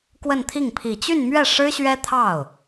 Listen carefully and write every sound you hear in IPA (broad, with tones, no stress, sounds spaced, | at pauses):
k w ə˥˧ n t̪ʰ i˥˩ ŋ pʰ i˨˩ t͡ɕ y˥˧ n m ɥ ɛ˥˩ ʂ ɻ̩˥ ɕ ɥ ɛ˥ t̪ʰ ɑ˥˩ ʊ̯